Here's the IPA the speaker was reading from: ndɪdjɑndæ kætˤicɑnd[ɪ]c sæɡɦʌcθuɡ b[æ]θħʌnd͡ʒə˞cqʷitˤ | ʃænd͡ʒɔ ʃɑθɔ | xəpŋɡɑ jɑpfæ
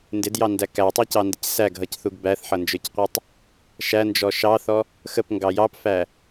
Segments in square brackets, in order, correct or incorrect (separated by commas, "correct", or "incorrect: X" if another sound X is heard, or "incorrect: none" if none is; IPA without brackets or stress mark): correct, correct